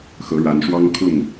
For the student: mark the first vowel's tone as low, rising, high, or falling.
rising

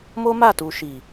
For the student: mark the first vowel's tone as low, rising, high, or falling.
high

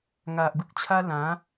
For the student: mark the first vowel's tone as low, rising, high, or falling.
low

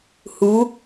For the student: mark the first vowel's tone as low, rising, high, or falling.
rising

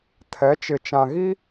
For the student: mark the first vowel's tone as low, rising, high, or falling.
rising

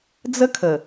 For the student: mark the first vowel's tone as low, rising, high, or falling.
high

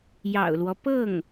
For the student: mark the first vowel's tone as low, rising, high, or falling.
low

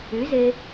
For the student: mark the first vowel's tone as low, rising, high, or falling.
rising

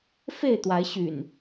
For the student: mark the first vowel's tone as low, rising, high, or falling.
falling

